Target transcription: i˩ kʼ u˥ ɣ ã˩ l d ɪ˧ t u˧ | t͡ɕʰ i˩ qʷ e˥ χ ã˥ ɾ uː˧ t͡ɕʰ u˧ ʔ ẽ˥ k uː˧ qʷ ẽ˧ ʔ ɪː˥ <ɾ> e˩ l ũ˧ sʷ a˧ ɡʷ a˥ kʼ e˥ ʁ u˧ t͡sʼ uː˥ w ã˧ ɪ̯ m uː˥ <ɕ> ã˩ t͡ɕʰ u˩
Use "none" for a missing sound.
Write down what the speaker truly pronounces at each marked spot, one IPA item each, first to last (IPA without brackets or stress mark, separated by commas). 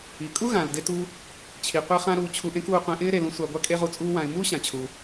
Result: ɾ, ɕ